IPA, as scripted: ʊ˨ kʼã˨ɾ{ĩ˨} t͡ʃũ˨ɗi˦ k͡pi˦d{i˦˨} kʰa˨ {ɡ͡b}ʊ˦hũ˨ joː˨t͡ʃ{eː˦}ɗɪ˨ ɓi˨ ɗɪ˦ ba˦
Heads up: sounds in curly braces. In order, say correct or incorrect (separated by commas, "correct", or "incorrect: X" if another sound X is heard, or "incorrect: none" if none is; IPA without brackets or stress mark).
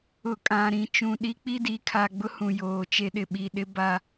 correct, incorrect: i˨˦, correct, incorrect: e˦